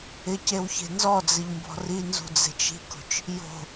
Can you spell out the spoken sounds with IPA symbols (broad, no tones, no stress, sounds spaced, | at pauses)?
ɪ c e w ç e̤ n z ɔ d͡z ɪ ʎ m b ɔ̤ r i n z ṳ d͡z e̤ t͡ʃ i̤ k o̤ t͡ʃ | j o̤